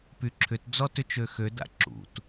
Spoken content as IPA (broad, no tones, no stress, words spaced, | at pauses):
pyǁʰʏt d͡zɔtʏt͡ʃøxø da̰ǁṵt